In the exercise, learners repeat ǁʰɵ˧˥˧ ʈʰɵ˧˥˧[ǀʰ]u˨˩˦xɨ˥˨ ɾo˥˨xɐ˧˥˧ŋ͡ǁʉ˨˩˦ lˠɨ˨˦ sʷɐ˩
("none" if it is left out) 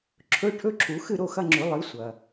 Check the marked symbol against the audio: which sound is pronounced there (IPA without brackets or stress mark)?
ǁʰ